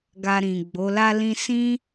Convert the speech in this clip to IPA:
ɡ a˧ ɾ ĩ˨ ɡ͡b o˨˦ l a˦ l ĩ˦ s ĩ˦

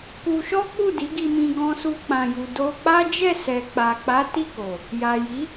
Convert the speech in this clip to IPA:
k u˧ ʃ ɔ˦ k͡p u˦˨ d i˨˦ ɡ i˧ m ĩ˧ ɡ ɔ̃˧ s u˧ k͡p ã˨ j u˨ d o˧ k͡p a˦ d͡ʒ ɛ˦˨ s ɛ˨ k͡p a˨ k͡p a˨˦ t i˦˨ k o˨ | j a˨ j i˨˦

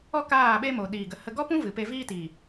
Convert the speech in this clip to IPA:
ɔ˦ k aː˦˨ ɓ e˦ m o˨ ɗ iː˨ ɡ ə˨ h ə˧ ɡ ɔ˦ p ũ˦ v ɨ˨ p e˧ v iː˦ t iː˨

